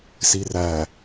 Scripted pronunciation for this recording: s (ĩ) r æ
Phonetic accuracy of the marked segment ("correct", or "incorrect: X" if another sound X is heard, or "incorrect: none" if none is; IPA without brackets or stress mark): incorrect: i